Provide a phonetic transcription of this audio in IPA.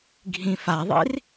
ɡʱĩfaðˤḭr

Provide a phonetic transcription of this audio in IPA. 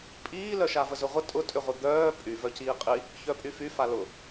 pʼiːlœʃa vəzʊʁʷə tʼʊtʼʏʁʷə d̪œː pʼy vœciːqʼi | çœpʼyfy falʊ

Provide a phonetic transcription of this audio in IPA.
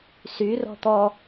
sy rɔ̤t̪ɔ

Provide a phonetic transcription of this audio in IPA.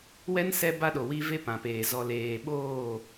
wɛ˦n sɛ˦ba˦ɗo˨wi˦ ve˦pã˨peː˨ zɔ˨leː˨ ɓoː˦˨

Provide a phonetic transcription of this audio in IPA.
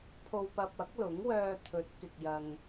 pʰo˨wpɐ˨p̚ ɐ˨˥k̚lʊ˨˥ŋ wœː˧t̪ʰɵ˨˥t̚kɪ˨k̚ jɐ˧ŋ

